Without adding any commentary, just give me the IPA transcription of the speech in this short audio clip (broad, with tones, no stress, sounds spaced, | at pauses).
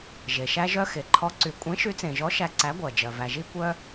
ʒ e˩ ʃ æ˧ ʒ œ˧ x e˩ ǃʰ ɔ˨˥ ǀ y˩ kʷʼ ẽ˨˥ ʃ y˨˥ t͡s ẽ˩ ʒ ɔ˨˥ ʃ æ˧ ǀ æ˨˥ ɡʷ ɜ˩ d͡ʒ ɜ˩ v æ˩ ʒ i˧ kʷ œ˧